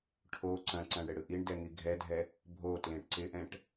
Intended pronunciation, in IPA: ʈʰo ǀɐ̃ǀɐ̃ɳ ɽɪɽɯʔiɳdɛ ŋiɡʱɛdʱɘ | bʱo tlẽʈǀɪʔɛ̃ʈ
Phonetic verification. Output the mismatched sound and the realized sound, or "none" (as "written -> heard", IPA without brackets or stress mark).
ɘ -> ɛ